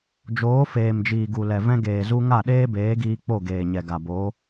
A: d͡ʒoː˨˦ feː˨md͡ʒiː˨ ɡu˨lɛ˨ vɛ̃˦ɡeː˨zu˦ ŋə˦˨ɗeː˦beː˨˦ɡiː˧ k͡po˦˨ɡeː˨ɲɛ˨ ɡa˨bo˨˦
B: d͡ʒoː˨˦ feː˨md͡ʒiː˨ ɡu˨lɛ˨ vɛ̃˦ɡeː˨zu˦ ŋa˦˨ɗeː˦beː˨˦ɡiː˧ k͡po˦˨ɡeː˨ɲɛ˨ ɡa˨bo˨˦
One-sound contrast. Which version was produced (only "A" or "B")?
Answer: B